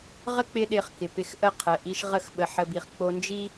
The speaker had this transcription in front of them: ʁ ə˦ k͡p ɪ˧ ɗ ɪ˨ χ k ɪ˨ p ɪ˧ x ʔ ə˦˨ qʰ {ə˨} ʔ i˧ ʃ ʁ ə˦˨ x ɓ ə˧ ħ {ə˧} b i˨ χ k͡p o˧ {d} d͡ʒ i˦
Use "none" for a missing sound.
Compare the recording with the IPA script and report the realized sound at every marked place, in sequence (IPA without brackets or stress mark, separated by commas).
ə˨, ə˧, n